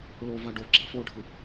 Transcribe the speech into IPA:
ɭova ɖo ɡ͡ǁa̰foɖʱɯ

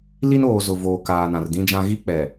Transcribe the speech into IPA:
li˦noː˨ zʊ˨voː˨ kaː˨nã˨rdĩ˦d͡ʒã˦ ɣi˦k͡pɛ˨

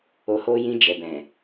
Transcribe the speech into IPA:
o˨ho˧jĩ˧ d͡ʒɛ˨bɛ̃˨

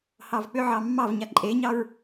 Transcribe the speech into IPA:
hɑvk͡pʏʕɑ mːɑvɲa ǃʼeɲɑɹ

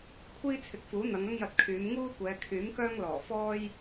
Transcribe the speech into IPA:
kʷʰiː˥t͡sʰɪ˨˥k̚fuː˨˥ n̪ɐ˨˧ŋɐ˥ŋjɐ˧t̚kʰyː˨˧m ŋuː˥kʷɛː˨˧ kʰyː˨˥mkœː˥ŋlɔː˨˩ fɔː˥j

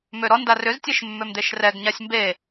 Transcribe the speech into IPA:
møɾɔnda rʏztʲeʃ mːømd̪eʃrɛɡɲasʲ mbe

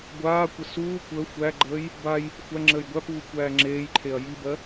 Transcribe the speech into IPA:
ɡʷaːkʷə suː kʷəː xʷæɡ͡ǃəːj | baj | xʷæ ŋ͡ǁəːjɡʷæpuː kʷæːŋ͡ǁeːjǃʰeɐ̯ jibɜ

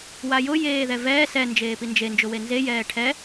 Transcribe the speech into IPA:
wajʊ jeːðɛvɛː sɛ nd͡ʒeːpind͡ʒe nd͡ʒʊwenze jɛːʈʰɛ

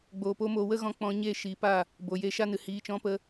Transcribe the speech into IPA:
ɡ͡boː˨po˦moː˧ wə˦ɣɔ̃˧k͡pɔ̃˧ ɲeː˦˨ʃiː˨˦pa˦˨ | bo˨je˧ʃa˦nɨ˨ hiː˧t͡ʃɔ̃˦pə˦

